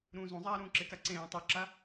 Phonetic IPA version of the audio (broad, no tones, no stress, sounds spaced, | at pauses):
ɾ ũː z ũ zˤ aː ɾ ũː ǁ ɪ k a ǀ ẽː tˤ u ǁ a